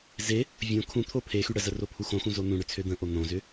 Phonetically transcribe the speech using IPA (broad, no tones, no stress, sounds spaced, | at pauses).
z e | vʲ õ kʰ ũ t̪ʰ o pʰ e x y ɽ ə z ə r o pʰ u x õ x ũ z o n̪ ũ ɽ ʏ t͡sʰ ø d̪ ə̃ ʔ o n̪ õ z ʏ